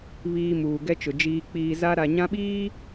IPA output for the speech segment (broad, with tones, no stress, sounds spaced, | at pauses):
β iː˨ m uː˨ ɡ ɛ˦ t͡ʃ ʊ˨ d͡ʒ iː˨ k͡p iː˨ z a˦ ɾ a˨ ɲ ã˦ ɓ iː˦